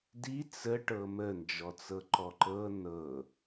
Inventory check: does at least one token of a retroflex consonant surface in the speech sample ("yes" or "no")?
yes